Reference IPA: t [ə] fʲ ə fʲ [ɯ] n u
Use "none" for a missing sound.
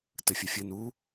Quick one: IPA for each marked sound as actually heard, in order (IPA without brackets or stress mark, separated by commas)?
ə, ɯ